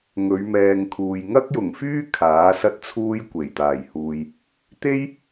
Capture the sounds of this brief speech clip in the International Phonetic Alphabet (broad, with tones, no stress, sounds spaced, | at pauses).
ŋ ɵ˨˧ ɥ m ɛː˨ ŋ kʰ uː˨ j ŋ ɐ˥ k̚ j ʊ˨˩ ŋ f yː˥ kʰ aː˨˥ s ɐ˥ t̚ t͡sʰ uː˥ j kʷ e˨˩ j t̪ aː˨˩ j h uː˨ j | t̪ e˥ j